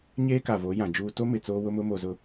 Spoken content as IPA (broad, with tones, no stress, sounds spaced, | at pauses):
ɲ eː˦ k a˨ v o˨˦ j ã˨ d͡ʒ uː˦ t o˦ m ɪ˨ t͡s oː˦ w ʊ˦ m ʊ˦ m o˨ z ʊ˨